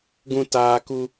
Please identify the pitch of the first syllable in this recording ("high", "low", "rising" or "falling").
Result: high